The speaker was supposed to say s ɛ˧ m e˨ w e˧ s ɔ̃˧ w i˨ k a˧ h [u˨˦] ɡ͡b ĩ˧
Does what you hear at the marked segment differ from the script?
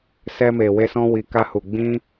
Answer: yes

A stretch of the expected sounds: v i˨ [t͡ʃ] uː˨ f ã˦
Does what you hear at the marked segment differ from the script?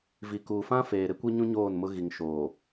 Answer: yes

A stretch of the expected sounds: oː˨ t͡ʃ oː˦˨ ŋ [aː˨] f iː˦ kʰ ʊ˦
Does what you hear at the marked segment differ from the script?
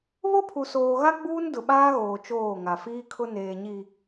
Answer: yes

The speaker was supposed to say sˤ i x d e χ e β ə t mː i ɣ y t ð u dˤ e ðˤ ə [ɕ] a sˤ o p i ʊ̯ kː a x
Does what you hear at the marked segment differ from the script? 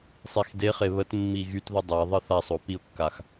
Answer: yes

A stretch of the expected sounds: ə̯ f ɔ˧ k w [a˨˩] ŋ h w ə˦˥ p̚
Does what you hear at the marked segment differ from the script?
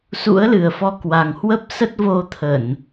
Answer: no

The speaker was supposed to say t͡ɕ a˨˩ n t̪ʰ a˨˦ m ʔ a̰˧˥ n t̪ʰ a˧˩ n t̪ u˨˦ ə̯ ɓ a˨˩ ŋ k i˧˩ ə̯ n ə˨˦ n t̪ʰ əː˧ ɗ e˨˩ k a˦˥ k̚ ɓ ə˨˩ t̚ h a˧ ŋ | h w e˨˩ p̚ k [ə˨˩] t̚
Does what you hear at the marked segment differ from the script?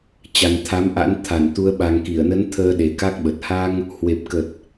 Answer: no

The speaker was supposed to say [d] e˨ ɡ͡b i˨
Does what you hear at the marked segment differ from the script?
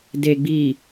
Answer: no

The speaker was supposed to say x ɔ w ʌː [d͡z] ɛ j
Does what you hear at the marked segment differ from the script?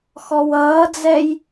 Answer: no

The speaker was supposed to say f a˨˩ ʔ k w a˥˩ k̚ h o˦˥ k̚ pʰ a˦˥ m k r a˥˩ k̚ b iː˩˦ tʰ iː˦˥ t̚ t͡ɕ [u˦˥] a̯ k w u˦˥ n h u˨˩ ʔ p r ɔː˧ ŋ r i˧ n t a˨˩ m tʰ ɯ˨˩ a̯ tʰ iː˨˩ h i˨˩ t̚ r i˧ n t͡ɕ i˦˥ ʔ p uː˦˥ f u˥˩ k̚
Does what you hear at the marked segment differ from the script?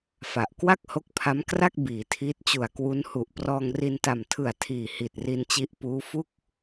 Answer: yes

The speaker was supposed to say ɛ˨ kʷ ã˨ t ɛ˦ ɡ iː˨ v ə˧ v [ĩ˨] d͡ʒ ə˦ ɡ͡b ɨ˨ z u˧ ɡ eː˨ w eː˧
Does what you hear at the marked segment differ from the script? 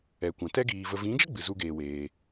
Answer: yes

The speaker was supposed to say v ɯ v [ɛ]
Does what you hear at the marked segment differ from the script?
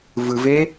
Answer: yes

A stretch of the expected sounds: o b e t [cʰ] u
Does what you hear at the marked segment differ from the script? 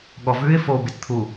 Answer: yes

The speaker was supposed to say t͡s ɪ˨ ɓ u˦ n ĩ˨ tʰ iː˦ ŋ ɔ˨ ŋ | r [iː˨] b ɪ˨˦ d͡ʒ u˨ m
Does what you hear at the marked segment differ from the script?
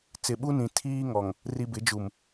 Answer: yes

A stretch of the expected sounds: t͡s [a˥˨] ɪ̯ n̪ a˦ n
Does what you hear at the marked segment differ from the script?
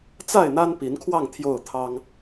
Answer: no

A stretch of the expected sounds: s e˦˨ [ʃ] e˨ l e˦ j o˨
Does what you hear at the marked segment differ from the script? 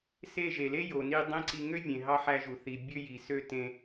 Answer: yes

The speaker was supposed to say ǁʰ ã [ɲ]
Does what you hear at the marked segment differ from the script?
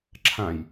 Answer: yes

